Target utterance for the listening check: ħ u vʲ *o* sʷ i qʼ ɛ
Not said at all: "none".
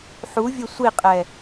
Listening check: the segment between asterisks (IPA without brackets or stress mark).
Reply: ɵ